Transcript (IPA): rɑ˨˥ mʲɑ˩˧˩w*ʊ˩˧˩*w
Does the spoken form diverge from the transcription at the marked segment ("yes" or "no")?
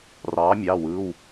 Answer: yes